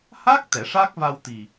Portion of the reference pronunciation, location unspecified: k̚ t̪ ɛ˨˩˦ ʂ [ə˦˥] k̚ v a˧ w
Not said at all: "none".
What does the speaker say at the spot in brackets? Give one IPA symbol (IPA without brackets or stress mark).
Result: a˦˥